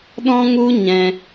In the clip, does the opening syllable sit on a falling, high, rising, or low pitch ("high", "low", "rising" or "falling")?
high